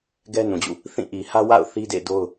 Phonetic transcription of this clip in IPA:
ɡ ɛ˦ n ũ˨ d͡ʑ ṵ˦˨ | θ ĩ˦˨ ʔ i˨ h ä˦ w a̰˦˨ ʊ̯ θ i˦ d ḛ˦˨ d o˦ ʊ̯

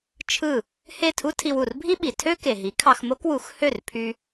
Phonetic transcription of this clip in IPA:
t͡ʃʰ ɯ˥˩ | h e˥˩ tʰ u˥ tʰ i˧ w u˩ r bʱ i˥ ɓ i˩ tʰ ø˥ k e˩ ɦ i˩˥ kʰ ɑ˧ x m o˥ k w u˩˥ x h ø˥˩ r pʰ y˧

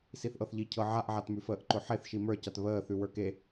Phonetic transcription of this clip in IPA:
s i θ ʔ ɤ θ ʎ i cʰ ɤ ʕ a ʔ ʕ a t m ʉ f əː ʔ ǃ ʊ ħ e θ ʃ i m ə˞ c a t β əː θ ʉ w ə˞ k e

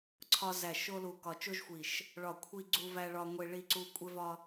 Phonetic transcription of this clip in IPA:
ǀʰ ɒ˧ z æ˨˩ ʃ o˧ l u˨˩ k ɒ˨˩ t͡ʃ o˧ ʒ xʷ i˨˩ ʃ | ɭ ɒ˨˩ kʷʰ i˧ ɡ͡ǀ u˧ v æ˧ ɭ ɒ˧ ŋʷ e˧ ɭ i˧ ǀ u˧ kʷʼ e˧ v ɒ˧

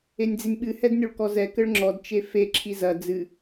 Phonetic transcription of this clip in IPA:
e nʲ d͡z i nʲ ɓ ɨ h ɛ d nʲ o ɭ k ɔ z ɛ k ɘ ɭ ŋ͡ǁ ɔ d t͡ʃ e f e ǁʰ i z ɐ d͡z ɨ

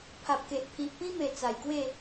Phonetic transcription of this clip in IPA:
pʰ a˨ p̚ k e˨ ʔ pʰ i˨ ʔ p ĩ˦ m e˨˩ t͡s a˨˩ j k w e˥˧

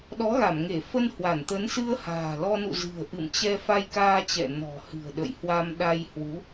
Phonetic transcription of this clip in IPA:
ɗ ɔ˨˦ ɣ a˧˩ m ŋ e˧˩ f ə˧ n h w a˧˩ n t̪ ə˨˦ n s ɨ˧ ə̯ h a̤ː˨˩ l ɔ˧ n ṵ˧˨ z ɨ̤˨˩ ə̯ ʔ ɨ̰˧˨ m t͡ɕ ɛ˧ f a˧ j k aː˧ t͡ɕ ɛ̰˧˨ n ɔ̤˨˩ h ɨ̤˨˩ ə̯ ɗ ə̰˧˨ j h w a˧ m ɗ a˧ j h w u˨˦

